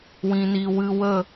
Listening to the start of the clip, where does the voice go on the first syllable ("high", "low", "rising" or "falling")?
low